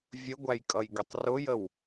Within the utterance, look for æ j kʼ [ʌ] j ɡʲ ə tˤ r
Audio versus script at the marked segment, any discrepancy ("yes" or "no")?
no